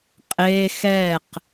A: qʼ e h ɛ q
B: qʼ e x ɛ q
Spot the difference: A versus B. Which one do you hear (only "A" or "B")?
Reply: B